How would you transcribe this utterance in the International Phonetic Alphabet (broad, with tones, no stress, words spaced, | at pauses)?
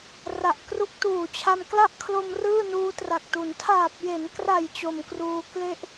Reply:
ra˨˩ʔkru˦˥k̚tuː˨˩t͡ɕʰa˧m kla˥˩ʔkʰlo˧m rɯː˥˩nuː˦˥tra˨˩k̚tu˩˦n tʰaː˨˩p̚je˩˦nkra˨˩j t͡ɕo˨˩m kruː˧ kle˦˥ʔ